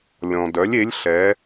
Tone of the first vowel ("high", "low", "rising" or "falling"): low